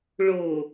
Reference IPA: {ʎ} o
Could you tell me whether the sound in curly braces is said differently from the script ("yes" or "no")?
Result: yes